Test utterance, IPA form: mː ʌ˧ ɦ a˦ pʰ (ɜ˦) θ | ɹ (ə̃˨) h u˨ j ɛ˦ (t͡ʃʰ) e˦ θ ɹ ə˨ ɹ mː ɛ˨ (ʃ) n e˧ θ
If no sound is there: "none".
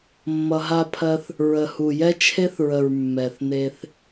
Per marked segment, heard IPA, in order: ɜ˦, ə˨, t͡ʃʰ, θ

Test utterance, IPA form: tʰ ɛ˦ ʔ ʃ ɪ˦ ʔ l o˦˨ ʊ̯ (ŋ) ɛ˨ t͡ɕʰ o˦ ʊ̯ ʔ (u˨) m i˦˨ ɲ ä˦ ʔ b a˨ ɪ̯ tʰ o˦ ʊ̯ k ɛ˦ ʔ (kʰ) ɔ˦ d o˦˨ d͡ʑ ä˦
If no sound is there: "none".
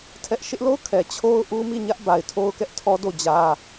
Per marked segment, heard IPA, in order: kʰ, u˦, tʰ

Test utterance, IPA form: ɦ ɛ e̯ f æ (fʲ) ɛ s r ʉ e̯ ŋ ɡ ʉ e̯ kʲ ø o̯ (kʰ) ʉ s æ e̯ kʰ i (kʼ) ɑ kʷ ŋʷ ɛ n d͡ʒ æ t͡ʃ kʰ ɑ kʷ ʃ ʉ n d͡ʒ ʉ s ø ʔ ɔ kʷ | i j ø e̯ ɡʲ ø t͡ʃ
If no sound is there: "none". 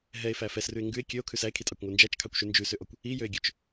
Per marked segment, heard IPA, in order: f, kʰ, tʼ

